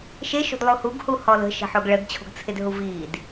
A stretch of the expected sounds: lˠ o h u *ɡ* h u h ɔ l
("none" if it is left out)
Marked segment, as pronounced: ɡ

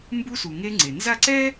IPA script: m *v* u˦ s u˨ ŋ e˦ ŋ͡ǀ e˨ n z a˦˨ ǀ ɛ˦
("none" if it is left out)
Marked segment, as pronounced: b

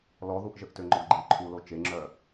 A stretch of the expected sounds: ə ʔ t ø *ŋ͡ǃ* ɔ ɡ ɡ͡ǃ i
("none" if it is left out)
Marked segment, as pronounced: ŋ͡ǃ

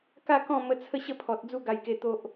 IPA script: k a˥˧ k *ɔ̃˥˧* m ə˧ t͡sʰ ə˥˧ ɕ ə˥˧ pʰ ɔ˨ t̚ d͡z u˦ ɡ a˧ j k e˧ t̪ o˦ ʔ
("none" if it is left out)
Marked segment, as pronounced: ɔ̃˥˧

